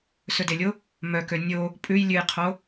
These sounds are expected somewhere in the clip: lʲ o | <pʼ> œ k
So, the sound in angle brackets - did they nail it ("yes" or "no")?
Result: no